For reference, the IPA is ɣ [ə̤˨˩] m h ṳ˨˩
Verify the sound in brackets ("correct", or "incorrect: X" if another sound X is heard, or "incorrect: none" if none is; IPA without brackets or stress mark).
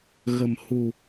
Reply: correct